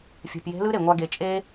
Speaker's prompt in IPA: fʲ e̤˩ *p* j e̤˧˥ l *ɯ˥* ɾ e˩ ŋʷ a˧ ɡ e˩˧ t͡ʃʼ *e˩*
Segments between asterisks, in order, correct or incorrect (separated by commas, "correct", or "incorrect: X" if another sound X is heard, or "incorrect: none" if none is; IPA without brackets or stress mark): correct, correct, incorrect: e˥